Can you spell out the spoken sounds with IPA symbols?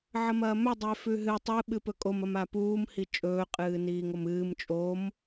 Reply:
ʕ ɐ m ɐː m ɵ dˤ e f ʉ ɦ ɨ tˤ ɨ ɓ ɨ p ɵ kʼ o m ɐ m a p uː m h i t͡ʃʼ ɵː qʼ ɨː n iː ŋ o m ɨː m t͡ʃʼ o m

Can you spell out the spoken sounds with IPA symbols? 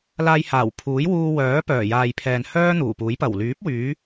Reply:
l aː˧ j h aː˨˩ w pʰ uː˨˥ j w uː˧ w œː˨˥ p œː˨˩ j aː˨ j pʰ ɛː˨ n h œː˥ n̪ uː˨˩ p uː˨˥ j p ɐ˨˩ w l yː˨˥ p̚ w yː˨˧

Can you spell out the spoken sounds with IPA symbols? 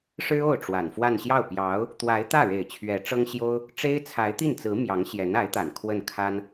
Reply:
ʂ ɻ̩˥ o˥˩ ʊ̯ ʈ͡ʂ w a˨˩ n f w a˥˧ n ɕ j ɑ˥˩ ʊ̯ p j ɑ˧˥ ʊ̯ | t̪ w a˧˥ ɪ̯ t̪ ä˥˩ ɻ e˨˩ ɪ̯ t͡ɕʰ ɥ ɛ˧˥ ʈ͡ʂ ɤ˥ ŋ ɕ j o˥ ʊ̯ | ʈ͡ʂ e˥ ɪ̯ t͡sʰ a˧˥ ɪ̯ t̪ i˥˩ n t͡s ɹ̩˧˥ m j ɑ˧˥ ŋ ɕ j ɛ˧˥ n a˧˥ ɪ̯ t̪ a˨˩ n kʰ w ə˥˩ n kʰ a˥ n

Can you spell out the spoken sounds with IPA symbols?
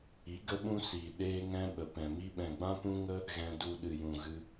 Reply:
i˨˦ ɡ ə˦ ɓ ũ˦ s iː˨ ɗ eː˦ ŋ ɛ̃˦ ɓ ə˨ p ɛ̃˨ m i˦ ɓ ɛ̃˨ ɡ͡b ã˦ p ũ˦ ŋ ə˦ | ɣ ɛ̃˧ d u˧ ɗ ɨ˨ j ũ˨ ɣ ɨ˧

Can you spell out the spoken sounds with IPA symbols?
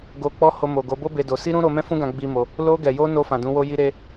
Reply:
ɡ o˧ k͡p ɔ˦ h o˧ m o˨ ɡ o˨˦ b o˦ b e˧ d o˧ s i˦ ɾ ũ˦ ɾ o˧ m ɛ̃˦ f ũ˦ ɡ ã˧ ɡ͡b i˦ m o˧ | l o˧ ɡ ɛ˨ j o˧ n o˧ f ã˨ d ũ˨˦ w o˦ j i˦ ɾ e˦

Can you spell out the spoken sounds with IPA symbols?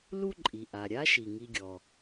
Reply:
l u˥ ǃʼ i˩ ʔ a˩ ɾʲ a˦ ʃ i˩ ŋ i˨ ɡʲ ɔ˩

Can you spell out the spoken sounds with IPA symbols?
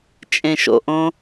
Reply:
t͡ʃʼ ẽ ʃ o̰ ʔ õ

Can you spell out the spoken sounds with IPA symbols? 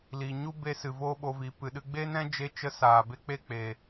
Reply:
l iː˨ ɲ u˦ b e˧ s ɨ˨ v oː˦ ɓ o˧ v i˨˦ p ɨ˧ ɗ ɨ˦ ɡ͡b e˦ n ɛ̃˦ d͡ʒ e˦ t͡ʃ ə˦ s aː˨ b e˦ k͡p e˦ k͡p eː˧

